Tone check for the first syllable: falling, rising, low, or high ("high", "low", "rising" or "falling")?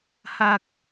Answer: high